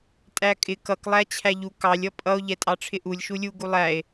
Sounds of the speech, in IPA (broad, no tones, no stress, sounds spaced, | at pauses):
tʼ æ kʼ ɪ k ʌ k lˠ æ t͡ɕʰ æ ʎ u k ɑ lʲ ʌ pʼ ʌ o̯ ʎ ɛ tʼ ɑ ʈ͡ʂʰ ɪ ʔ u lʲ ʃ u lʲ u ɡ u lˠ æ e̯